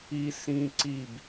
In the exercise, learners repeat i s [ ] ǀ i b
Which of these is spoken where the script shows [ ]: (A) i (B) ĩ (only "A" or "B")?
B